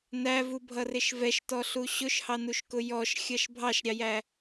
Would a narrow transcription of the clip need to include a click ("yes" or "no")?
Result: no